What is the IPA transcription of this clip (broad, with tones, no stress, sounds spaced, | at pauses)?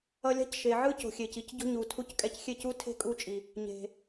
ʌ˧ lʲ a̤˦ c ʃ e˨ ʕ ɯ˦ c o̤˨ xʲ e˨ c i˧ c ɟ o̤˦ ɲ u˨ tʰ u˧ c kʼ ɛ˧ c xʲ e˦˨ c u˦ tʰ e̤˦ kʼ u˧ t͡ʃʼ i˨ | ɲ e̤˨